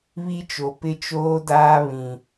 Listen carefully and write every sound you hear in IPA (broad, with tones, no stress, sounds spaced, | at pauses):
β i˦ t͡ʃ o˨ p ɪ˦ t͡ʃ oː˦ d aː˦ β ĩ˨